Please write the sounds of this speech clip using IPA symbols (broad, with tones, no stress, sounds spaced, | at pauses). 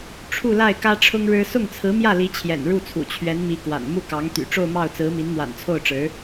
ʈ͡ʂʰ u˥˧ l a˥˩ ɪ̯ k ä˥ ʈ͡ʂʰ ʊ˥ ŋ ɻ ɻ̩˥ s ʊ˥˩ ŋ t͡sʰ ɹ̩˧˥ m j ä˥˩ l i˧˥ t͡ɕʰ j ɛ̰˨˩ n ɻ u˥˩ t͡sʰ ṵ˨˩ t͡ɕʰ ɥ ɛ˧˥ n m i˧˥ k w a̰˨˩ n m u˥˩ k ɑ˧˥ ŋ t̪ y̰˨˩ ʈ͡ʂ o˥˧ ʊ̯ m ɑ˥˩ ʊ̯ t͡s ɹ̩˧˥ m i˧˥ n m w a̰˨˩ n t͡sʰ o˥˩ ʊ̯ ʈ͡ʂ ɻ̩˧˥